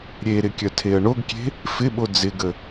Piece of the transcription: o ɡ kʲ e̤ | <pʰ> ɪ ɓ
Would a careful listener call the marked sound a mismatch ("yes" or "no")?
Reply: yes